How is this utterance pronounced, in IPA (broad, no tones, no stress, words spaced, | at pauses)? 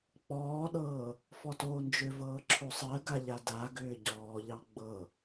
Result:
k͡pɔːɗɤː | fɔtoːnd͡ʒʏvɤː ǁʰosˤɜɡa ʎadaɡʏː ɟɔːʎɑ ɡ͡bɤ